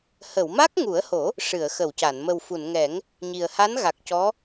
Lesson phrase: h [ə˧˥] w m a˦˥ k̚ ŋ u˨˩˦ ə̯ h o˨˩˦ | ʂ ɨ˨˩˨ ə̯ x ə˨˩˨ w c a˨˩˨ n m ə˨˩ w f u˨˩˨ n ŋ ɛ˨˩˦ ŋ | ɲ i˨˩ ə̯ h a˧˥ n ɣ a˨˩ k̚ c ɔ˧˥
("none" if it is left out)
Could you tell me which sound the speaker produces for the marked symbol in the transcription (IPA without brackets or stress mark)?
ə˨˩˨